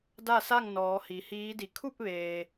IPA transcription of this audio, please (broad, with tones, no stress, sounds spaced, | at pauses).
d a˥˨ s a˥˨ ŋ n ɔː˩˧ h i˩˧ h iː˧˥ d i˧˩ kʰ u˥˨ p̚ ʋ eː˩